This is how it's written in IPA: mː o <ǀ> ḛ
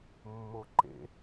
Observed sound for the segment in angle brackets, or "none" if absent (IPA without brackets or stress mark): ǃ